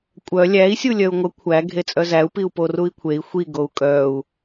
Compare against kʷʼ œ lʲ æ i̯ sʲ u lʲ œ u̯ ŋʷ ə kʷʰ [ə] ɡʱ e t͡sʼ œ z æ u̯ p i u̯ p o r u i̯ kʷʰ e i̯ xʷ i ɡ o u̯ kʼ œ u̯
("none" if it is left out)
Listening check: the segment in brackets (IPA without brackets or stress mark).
æ